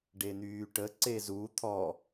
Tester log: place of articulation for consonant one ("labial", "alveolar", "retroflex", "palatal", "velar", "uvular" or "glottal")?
retroflex